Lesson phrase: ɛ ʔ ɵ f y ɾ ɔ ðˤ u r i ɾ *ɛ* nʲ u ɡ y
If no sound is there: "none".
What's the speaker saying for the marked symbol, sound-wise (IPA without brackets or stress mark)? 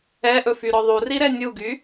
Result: ɛ